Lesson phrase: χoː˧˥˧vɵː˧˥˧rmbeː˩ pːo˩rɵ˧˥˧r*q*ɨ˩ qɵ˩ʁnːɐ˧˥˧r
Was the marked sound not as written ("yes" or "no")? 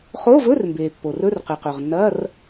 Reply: no